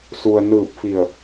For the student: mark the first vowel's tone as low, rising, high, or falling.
low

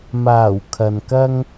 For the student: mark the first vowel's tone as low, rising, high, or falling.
low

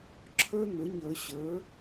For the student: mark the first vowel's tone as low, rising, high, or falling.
high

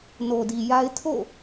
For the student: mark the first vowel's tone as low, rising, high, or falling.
low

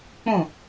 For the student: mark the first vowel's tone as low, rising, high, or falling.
falling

